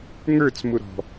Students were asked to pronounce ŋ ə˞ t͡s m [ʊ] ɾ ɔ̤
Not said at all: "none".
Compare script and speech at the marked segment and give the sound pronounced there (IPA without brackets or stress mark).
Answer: ʊ